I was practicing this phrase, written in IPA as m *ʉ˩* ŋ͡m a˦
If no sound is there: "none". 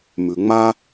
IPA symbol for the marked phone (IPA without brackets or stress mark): ʉ˩